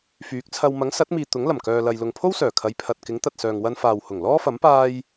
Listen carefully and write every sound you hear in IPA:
fyː˨˥k̚t͡sʰɐ˧w mɐ˨˥ŋsɐ˨˥t̚miː˨ t̪ʊ˨˥ŋlɐ˨˩mkœː˨lɐ˨j lʊ˨ŋpʰo˥wsœː˨˩ kʰɐ˨˧jpʰɐ˨t̚ kɪ˨˥ŋ t̪ɐ˨t̚sœː˨ŋ wɐ˧nfaː˨whʊ˨˩ŋ lɔː˥fɐ˨˥m paː˧j

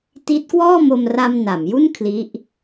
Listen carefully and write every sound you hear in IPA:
ti˦˥t̚ kwɔː˥˩mo˧mra˧m na˩˦mju˥˩n kʰli˦˥ʔ

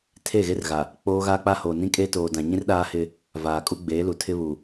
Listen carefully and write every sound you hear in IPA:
tʰe˦˨ɣe˦rɣa˨ | k͡poː˦ ɣaː˦k͡pa˦hoː˨ nĩ˦kʼeː˦toː˨dã˨ ɲĩ˦rɗaː˦hɪ˦ | vaː˨kʼu˦ɡ͡beː˨˦lu˨ tʰɪ˦βu˨

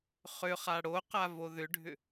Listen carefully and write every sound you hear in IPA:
χʏχa ɽo qavoðʏɖʱʏ

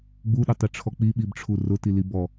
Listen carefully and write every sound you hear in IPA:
ɡ͡buɗʊtˤiʈ͡ʂʰɔ k͡piɓibʈ͡ʂʰu rʊtili bɔ

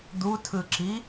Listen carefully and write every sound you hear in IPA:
d̪utʰɯǁi

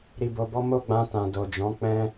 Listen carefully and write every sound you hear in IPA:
ɾi˧bo˧bɔ˦ mo˦˨ɡ͡bã˧tã˨ do˨d͡ʒɔ̃˨˦ k͡pɛ̃˧

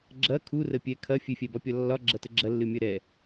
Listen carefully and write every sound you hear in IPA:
ɡ͡ǁɐ kʰurəpʲɛ kʰɐ fʲɨfʲɛbɒpʲɒ lːɒɡ͡ǁɐtə ɡ͡ǁɐlːɨmʲɐ ɾɛ

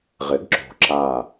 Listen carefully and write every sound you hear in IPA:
ʁɪ˩˥ɡǁo̤˨˩ ǁa˨˩

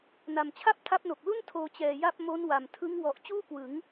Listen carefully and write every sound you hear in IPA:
na˨˩mt͡ɕʰa˥˩p̚tʰa˦˥p̚no˨˩k̚ lu˥˩n tʰoː˧t͡ɕɛː˨˩ja˥˩p̚ mo˦˥nwa˨˩mtʰɯ˦˥ŋ wɔ˨˩ʔ t͡ɕuː˥˩kwɯ˩˦ŋ

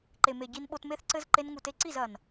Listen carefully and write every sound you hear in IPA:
ǃe˨me˨ ɟi˧nɓo˧tme˦θǀɘ˦z ǃe˧nŋu˨te˧ǀi˦˨z ɐ˨n

